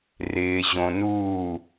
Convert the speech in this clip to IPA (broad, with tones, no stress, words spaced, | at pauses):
rɪː˨ ʑõ˨nuː˦˨